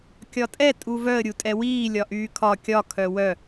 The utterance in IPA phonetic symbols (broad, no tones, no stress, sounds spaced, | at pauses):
kʲ ɒ tʼ ɛ tʼ u v œ ə̯ ɾʲ u tʼ ɛ w iː lʲ ɒ ʔ yː kʰ ɒ kʲ ɒ kʰ œ w œ